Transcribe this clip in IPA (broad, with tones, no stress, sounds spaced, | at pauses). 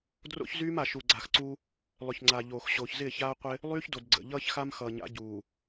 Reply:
d r o̰˦ ç z yː˦ m a˨ ʃ u˨ ɡ͡ǀ a˨ x ǀ u˦ | lˠ ʏ˨ ç ŋ͡ǀ a˨ ʎ oː˨ x ɕ oː˨ ç z ɪː˦˨ ç aː˦ qʷ ɪ˦ | lˠ yː˦ ç d o˨ d ɡ͡ǀ ə̰˨ ʎ ʌː˦ ç x a˦ m x ʌː˨ ɲ a̰˨˦ ɟ uː˨